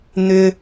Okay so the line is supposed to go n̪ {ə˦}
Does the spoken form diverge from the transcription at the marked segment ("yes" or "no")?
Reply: yes